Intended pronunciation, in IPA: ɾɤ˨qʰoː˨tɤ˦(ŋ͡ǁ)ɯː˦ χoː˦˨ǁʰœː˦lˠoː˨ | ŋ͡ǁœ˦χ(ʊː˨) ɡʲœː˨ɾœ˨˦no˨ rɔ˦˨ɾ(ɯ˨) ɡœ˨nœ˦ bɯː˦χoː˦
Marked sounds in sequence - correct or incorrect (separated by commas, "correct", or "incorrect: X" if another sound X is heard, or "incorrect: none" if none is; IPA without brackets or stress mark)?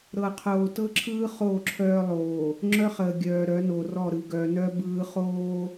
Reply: incorrect: ǁʰ, incorrect: əː˨, correct